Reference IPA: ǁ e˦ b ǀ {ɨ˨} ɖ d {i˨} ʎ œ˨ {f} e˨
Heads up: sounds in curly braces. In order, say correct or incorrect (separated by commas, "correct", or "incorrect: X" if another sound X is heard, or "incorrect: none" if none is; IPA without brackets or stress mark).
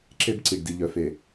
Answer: incorrect: i˨, correct, correct